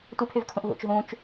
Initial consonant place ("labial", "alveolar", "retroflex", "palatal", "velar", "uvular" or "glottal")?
alveolar